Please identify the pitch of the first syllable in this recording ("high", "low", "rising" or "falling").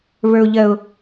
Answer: high